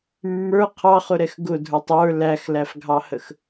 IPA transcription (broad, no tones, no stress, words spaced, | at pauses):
mːə˞ qʰɑχʊɾɛx ɡʊdʱə˞tˤ ə˞ læxlæfɡʱɑhəx